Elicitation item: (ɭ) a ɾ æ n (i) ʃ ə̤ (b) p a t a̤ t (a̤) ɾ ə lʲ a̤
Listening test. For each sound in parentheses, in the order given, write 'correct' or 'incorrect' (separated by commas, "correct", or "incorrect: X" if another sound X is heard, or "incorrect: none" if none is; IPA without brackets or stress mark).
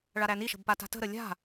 correct, correct, correct, incorrect: ə̤